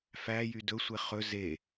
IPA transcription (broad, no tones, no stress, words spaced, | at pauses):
fæ jydɵ sʷeχɵ ze